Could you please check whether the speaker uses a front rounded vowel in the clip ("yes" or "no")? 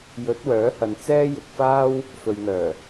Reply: yes